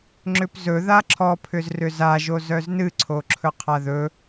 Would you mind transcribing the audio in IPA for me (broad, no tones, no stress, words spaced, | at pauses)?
ŋ͡ǁʏpzɵ ðaǁʰɔpʰʏzrʏ za ʒozœznɨǀʰo ǁʰɵqʰaðɵ